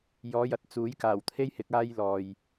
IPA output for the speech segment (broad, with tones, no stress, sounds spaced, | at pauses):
j ɔː˨˧ j ɐ˨˥ t̚ t͡s uː˨˥ j k aː˨˩ w t̪ʰ e˥ j h ɪ˨˥ k̚ aː˥ j l ɔː˨ j